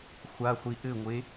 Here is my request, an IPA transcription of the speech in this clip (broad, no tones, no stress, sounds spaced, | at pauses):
χʷ a χʷ i ʔ ɘ ŋʷ e